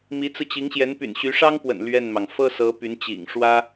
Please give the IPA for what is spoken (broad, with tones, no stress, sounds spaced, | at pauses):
m i˧˥ t͡s ɹ̩˧ t͡ɕ i˧˥ ŋ ɕ j ɛ˧˥ n p y̰˨˩ n ɕ y˧˥ ʂ ɑ˥ ŋ p w ə̰˨˩ n l ɥ ɛ˥˩ n m ɑ˩ ŋ f ɤ˥ s ɤ˧˥ p y˧˥ n t͡ɕ ḭ˨˩ ŋ ʂ w ä˥